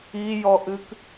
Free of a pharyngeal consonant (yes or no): yes